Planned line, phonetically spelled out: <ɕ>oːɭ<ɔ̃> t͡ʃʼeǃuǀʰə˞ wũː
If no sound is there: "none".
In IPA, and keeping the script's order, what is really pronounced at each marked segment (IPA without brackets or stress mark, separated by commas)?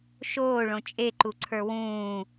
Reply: ʃ, õ